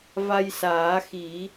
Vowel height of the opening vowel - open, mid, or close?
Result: open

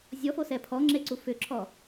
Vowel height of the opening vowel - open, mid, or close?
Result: mid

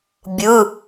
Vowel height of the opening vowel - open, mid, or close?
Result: close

